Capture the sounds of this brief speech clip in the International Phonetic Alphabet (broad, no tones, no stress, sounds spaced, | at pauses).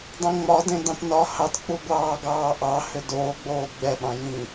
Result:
dˤ ẽ ŋ͡m ɒ d ẽ d ɑ̃ t n ɒ h ɑ t k͡p u ɡʷ ɑː ɡ ɑː ʔ ɑ h ʏ d oː ɡ͡b oː ɡ͡b ɛ ɓ ɑ̃ j ĩː